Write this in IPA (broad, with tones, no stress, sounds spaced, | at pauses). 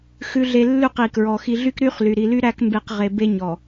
x ʉ˨ ɮ e˨ lː ʉ˦˨ q i˨ k ɹ ɔ˨ x i˨ ɮ y˦ k ɾ y˦ χ l y˨ ɾ i˨ l y˦ ɾ æ˦ k m b e˦ q ʁ e˨ b e˦ ɲ ɔ˨